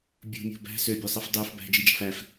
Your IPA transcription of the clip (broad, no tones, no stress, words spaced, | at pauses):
bʲṳmʲo̤ bæ̤ søbʲøsˤif dˤyf bæ̤d͡ʒid͡ʒɑ̤f æf